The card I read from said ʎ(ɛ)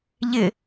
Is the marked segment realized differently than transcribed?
yes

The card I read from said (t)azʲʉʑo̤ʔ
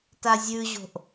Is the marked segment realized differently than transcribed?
no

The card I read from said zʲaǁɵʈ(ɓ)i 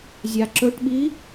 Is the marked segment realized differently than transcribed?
no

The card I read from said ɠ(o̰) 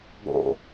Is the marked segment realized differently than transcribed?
no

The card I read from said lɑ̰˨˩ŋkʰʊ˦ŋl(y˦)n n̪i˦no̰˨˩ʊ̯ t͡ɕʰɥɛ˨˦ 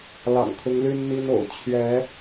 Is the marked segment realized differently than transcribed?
no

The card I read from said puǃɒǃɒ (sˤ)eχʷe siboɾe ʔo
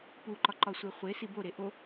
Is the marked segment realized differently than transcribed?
yes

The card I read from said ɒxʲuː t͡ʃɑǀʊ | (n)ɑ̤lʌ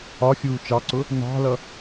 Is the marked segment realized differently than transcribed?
no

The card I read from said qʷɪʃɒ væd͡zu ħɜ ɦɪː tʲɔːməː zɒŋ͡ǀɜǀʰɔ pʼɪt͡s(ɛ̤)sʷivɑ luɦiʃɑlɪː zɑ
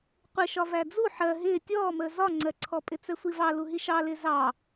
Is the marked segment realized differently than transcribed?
yes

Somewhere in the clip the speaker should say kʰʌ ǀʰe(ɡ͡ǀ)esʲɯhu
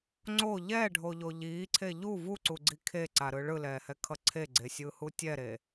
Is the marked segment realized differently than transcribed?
no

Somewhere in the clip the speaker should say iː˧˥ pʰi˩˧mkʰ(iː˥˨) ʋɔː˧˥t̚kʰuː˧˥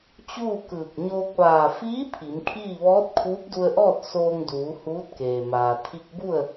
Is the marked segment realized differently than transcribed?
no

